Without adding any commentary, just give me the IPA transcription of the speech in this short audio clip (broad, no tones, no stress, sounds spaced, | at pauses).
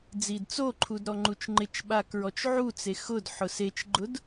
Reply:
d͡z i d t͡s o ǃʰ u d ɾ ɔ ŋ͡ǃ u t͡ʃ ŋ͡ǃ ɪ t͡ʃ ɓ a k ɹ ɔ t͡ʃ ʕ u t͡s e x ʊ d ħ ʊ s e t͡ʃ ɡ͡ǃ ʊ d